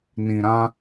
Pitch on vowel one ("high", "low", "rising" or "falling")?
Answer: low